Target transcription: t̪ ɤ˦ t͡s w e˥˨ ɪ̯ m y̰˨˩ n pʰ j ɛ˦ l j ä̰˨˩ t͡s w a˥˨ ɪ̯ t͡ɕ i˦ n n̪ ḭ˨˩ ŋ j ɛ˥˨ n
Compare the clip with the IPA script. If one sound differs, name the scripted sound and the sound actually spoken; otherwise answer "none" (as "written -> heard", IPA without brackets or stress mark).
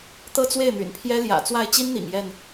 none